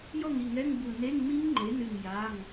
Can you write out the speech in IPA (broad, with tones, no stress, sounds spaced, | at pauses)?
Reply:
j ɔ˥˨ ŋ i˩˧˩ ŋ ɛ˧˥˧ ŋ b u˧˩ n e˧˥˧ ŋ m i˦˥ ŋ ŋ͡ǃ e˩˥ n ɨ˧˩ ŋ j a˩˧˩ ŋ